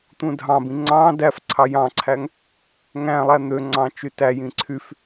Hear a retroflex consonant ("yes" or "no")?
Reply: no